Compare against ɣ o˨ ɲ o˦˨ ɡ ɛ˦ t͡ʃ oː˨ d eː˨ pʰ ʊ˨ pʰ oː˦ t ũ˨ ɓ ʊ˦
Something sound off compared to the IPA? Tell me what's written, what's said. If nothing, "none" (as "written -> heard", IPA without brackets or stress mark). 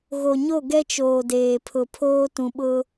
none